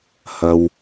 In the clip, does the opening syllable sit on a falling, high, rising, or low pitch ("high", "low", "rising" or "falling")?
low